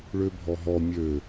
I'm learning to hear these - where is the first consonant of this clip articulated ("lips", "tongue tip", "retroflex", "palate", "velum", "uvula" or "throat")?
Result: retroflex